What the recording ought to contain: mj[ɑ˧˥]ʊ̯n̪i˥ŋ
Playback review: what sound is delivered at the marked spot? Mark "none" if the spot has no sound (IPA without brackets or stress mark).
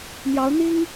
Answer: ɑ˧˥